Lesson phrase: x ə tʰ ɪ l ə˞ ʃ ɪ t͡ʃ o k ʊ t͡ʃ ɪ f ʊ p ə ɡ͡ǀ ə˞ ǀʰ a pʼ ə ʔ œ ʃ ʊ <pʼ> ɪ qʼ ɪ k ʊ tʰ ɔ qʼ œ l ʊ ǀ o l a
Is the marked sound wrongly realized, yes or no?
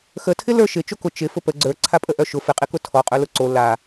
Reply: yes